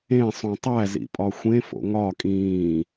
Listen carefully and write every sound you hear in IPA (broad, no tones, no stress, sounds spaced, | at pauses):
ẽ sˤ ũ tˤ æ z ḭ pʼ ɒ xʷ ẽ f o̰ ŋ ɒ kʼ ĩː